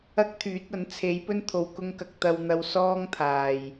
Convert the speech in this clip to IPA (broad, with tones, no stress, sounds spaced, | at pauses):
ɐ˥ k̚ t̪ʰ yː˨˥ t̚ ɐ˨˥ n t͡sʰ e˨˥ j p ɵ˥ n t̪ʰ o˨˧ w k ʊ˧ ŋ k ɐ˨ k̚ t̪ ɐ˧ w n̪ ɐ˧ w s ɔː˥ ŋ t̪ʰ aː˨ j